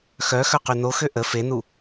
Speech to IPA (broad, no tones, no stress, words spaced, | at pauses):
xœ xœqynoxø ʔə fenu